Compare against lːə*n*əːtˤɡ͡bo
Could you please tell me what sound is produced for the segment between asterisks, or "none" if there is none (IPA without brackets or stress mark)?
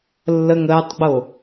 ŋ